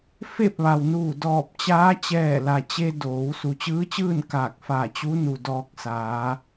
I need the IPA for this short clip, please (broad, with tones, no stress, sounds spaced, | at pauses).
f e˥˨ p̚ ʋ a˩ w n uː˧˩ d ɔː˧˩ p̚ t͡ɕ aː˧˥ t͡ɕ ɛː˧˩ l a˩ t͡ɕ e˧ d oː˩˧ w s u˩ t͡ɕ ɯː˧˥ t͡ɕ ɯː˥˨ n k aː˧˩ k̚ f a˧˩ t͡ɕ u˧˥ n u˩ d ɔː˧ k̚ s aː˩˧